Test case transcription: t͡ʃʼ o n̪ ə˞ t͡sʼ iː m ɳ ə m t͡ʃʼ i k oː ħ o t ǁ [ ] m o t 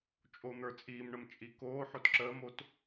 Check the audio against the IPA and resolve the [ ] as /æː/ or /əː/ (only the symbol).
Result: əː